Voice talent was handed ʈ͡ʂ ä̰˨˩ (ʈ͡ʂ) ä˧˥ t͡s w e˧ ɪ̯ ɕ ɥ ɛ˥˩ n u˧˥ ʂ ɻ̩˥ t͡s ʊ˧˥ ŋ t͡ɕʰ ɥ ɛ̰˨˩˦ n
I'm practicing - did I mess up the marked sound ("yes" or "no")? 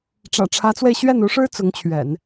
yes